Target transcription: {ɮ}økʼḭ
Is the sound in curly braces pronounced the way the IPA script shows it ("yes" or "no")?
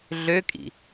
yes